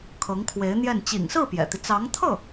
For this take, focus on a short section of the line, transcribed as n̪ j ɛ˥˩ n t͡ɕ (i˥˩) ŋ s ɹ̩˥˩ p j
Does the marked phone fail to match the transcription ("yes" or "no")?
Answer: yes